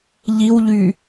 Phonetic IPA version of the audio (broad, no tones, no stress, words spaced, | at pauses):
ʎiwʎy